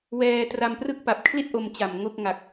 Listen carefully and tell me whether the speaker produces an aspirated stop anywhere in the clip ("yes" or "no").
yes